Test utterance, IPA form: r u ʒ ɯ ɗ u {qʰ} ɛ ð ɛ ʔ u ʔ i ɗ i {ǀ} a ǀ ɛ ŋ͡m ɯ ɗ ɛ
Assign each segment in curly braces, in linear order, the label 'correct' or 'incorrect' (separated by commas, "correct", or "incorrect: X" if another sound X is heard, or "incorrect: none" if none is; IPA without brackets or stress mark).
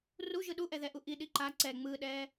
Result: incorrect: ʔ, incorrect: ǃ